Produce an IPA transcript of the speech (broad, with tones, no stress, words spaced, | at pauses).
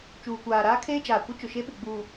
t͡ʃuː˨kʷaː˨ ɾaː˦kʰeː˦d͡ʒaː˨ kʷɪ˦ t͡ʃʊ˨ʃe˦ɓɪ˨ ɡ͡buː˨